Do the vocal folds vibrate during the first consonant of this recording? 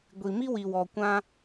yes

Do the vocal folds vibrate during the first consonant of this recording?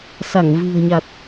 no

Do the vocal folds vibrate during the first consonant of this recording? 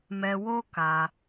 yes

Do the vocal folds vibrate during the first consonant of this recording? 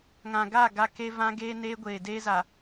yes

